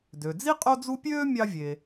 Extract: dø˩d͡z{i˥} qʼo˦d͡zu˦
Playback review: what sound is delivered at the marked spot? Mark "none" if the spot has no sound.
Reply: i˥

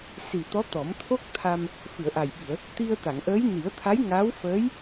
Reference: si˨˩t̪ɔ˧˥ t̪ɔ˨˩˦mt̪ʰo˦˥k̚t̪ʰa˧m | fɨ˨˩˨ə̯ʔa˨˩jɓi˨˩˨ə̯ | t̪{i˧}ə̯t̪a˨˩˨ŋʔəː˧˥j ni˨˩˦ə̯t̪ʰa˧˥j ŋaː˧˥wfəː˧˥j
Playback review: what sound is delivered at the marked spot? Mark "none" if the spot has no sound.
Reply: i˧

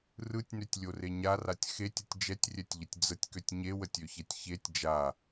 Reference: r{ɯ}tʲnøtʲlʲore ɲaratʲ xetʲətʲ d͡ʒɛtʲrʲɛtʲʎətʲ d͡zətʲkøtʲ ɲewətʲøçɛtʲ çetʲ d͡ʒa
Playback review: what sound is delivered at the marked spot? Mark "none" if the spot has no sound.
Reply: ɯ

